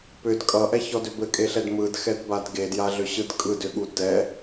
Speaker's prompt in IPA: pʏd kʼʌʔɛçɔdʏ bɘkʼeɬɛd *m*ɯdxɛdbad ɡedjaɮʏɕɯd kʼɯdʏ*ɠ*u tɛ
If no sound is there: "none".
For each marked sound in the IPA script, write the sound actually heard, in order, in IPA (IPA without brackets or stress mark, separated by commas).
m, ɠ